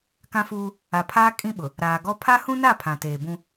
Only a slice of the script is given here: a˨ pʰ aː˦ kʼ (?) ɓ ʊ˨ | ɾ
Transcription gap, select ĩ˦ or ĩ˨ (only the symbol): ĩ˦